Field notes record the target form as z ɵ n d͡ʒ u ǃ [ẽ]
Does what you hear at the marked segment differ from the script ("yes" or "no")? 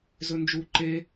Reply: yes